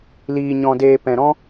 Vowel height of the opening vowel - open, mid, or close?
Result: close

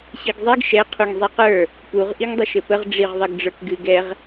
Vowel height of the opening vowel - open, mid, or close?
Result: close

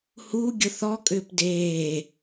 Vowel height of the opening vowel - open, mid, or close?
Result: close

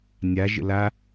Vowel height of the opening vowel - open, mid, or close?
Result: open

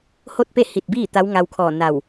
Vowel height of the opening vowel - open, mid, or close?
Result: mid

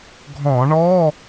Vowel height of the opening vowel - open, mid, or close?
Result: mid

